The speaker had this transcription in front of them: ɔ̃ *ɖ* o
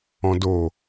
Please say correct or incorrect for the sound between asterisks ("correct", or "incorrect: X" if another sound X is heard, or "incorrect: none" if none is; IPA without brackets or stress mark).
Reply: incorrect: d